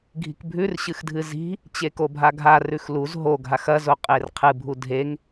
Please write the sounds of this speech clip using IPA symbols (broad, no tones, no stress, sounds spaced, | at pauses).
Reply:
ɡʱ i̤ k bʱ ʉ r ɕ ɨ x dʱ ɨ z i̤ | t͡ɕ e k o bʱ a ɡʱ a r ʉ x l u z ɦ o ɡʱ a x ɐ z o qʼ e r qʰ ɨ bʱ u dʱ e ŋ